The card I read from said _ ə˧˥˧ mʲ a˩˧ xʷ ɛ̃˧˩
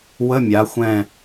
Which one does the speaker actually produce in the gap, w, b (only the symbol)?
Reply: w